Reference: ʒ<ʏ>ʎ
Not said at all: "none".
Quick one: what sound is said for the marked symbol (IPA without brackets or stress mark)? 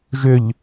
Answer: ʏ